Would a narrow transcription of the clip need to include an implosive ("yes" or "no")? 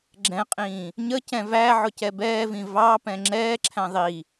no